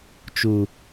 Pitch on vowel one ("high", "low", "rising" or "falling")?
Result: low